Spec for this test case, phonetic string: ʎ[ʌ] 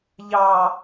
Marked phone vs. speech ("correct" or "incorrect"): incorrect